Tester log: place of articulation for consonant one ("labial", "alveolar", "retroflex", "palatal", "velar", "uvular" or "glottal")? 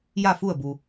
palatal